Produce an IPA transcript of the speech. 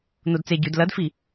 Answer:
n o d t͡s e ɟ ʉ d l ɐ d f i

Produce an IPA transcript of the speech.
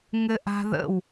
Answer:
ŋ ɘ ʔ a̤ ð ə̰ w

